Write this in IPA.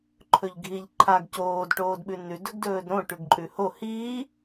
ǃʰ ɵ ʎ ɡʱ i ʎ ǃʰ a ɡ c oː d ʈ oː d ɓ ʉ n ʉ d ɵ ɡ d ɵː d ɾ õ ʈ ʉ ɡ ǃʼ ʉ h o h iː

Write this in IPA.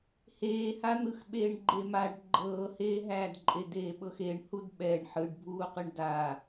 h eː h a n̪ ɯ x ɓ eː ɳ ɡ͡ǃ e m a ɖ ɡ͡ǃ ɤː h eː ɦ æː d ǃʼ e d eː ɓ ɤ x e ɳ h u d ɓ ɛ ɳ ħ ɯ ɖ bʱ uː q ɯ ɳ d a

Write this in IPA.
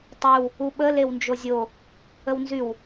tˤ y w | u ɓ ə l e w n d͡ʒ o zʲ o | ə w n z y w

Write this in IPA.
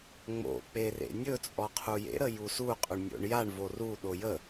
ŋ͡m o̰ k͡p e r ḛ nʲ ɵ t͡sʼ ɔ qʰ u j ḛ ɾ ə j u s u qʼ ʏ ɳ nʲ o̰ ɳ j a ɳ v o r u ɗ o j ə

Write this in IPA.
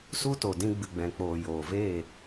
s u˦ t o˨ d ĩ˧ ɡ͡b ɨ˨ ɡ͡b ɛ̃˨ k͡p oː˨ j oː˨ v eː˦˨

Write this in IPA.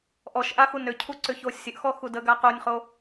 ʔ ɔ ʃ ʔ a x u n ʏ cʰ u ǀ ʏ ç o sʲ ə ʔ x ɔ x u d ə ɡ a q o nʲ χ o

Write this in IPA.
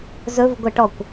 z ɵ v ɡʷ ɛ ʈ ɔ kʷ

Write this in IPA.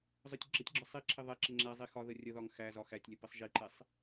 zˤ ʊ tʲ ɡ͡ǁ ə tʲ ɡ͡ǁ ɒ sˤ i ǁʰ ɪ ðˤ ɛ ǁ ɪ ŋ͡ǁ æ zˤ i x ɒ ð ə rʲ ə ð ɒ ŋ x æ z ɒ x æ tʲ lʲ ə p ɪ sˤ ʒ i ǃ ɛ sˤ

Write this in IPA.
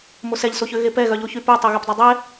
m o s ɛ ʎ s o ç ø ɣ e p ɛ ɣ œ ʎ o ç y p ø tˤ ø ɣ ɛ p dˤ ɛ dˤ ɛ

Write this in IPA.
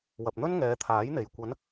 w ɐ˨ p̚ n̪ ɵ˥ n ŋ ɛː˨˧ t̪ʰ aː˨˥ j n̪ e˨ j kʷ ɐ˨˧ n

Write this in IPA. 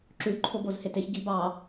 ǁ ʉ ǃʰ o b o z h e t e ç ɟ i b ɑ

